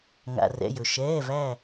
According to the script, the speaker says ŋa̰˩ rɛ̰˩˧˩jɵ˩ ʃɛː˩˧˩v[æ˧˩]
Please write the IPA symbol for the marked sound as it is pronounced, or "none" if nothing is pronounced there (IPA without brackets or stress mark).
æ˧˩